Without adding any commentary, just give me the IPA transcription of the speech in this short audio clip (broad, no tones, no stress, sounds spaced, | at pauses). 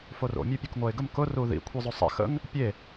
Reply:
f o r o̰ mʲ o pʲ u k ŋʷ ɛ ɪ̯ ɡ ə m k ʊ r u ð ḭ kʷʰ i zˤ o sˤ ɛ̰ x ə̰ ŋ | pʲ e